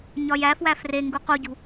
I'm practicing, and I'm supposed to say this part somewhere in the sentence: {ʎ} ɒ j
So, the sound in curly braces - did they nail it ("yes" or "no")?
no